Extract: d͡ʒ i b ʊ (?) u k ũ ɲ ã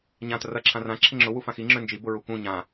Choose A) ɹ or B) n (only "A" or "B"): A